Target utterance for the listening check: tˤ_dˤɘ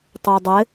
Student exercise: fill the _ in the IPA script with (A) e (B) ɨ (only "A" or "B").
A